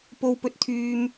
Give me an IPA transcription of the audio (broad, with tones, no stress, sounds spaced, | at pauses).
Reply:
p o˥ w p ɵ˥ t̚ t̪ʰ yː˥ m